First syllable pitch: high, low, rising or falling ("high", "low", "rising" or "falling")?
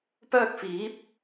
high